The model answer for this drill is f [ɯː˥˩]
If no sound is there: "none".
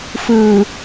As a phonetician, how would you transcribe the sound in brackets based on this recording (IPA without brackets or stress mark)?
ɯː˨˩